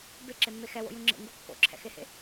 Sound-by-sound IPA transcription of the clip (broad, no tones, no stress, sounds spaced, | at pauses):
b e ǁ e mː e x ɛ w o̰ j ũ ŋ͡ǁ ḛ ŋ ɡ u kː o̰ ǁʰ ɛ̰ x e h ḛ